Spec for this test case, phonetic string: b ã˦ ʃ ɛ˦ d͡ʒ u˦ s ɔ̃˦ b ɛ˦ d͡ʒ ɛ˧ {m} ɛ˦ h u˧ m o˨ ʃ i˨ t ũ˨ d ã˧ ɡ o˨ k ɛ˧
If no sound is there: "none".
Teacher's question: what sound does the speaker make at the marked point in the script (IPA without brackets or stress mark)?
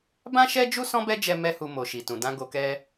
m